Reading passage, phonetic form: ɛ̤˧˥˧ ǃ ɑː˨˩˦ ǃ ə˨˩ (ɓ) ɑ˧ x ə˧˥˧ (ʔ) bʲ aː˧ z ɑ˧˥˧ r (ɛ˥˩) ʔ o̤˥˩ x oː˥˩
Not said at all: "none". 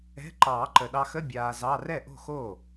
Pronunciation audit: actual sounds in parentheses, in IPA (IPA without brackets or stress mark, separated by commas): ɗ, none, ɛ˥˩